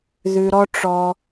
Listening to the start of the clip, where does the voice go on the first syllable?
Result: low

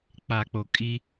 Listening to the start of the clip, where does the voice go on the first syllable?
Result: low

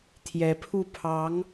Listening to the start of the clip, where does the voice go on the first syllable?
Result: rising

